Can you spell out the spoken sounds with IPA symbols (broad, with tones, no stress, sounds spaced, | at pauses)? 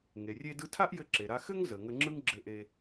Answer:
ŋ e˩ rʲ e˧ d ɯ˧ tʰ a˥ ʔ j ɘ˧ ǁ e˩ ɾ a˧ x ɘ˥ ŋ z ə˩ ŋ ə˧ ŋ͡ǁ ɯ˥ ŋ ɡ͡ǁ ɘ˧ ʔ e˧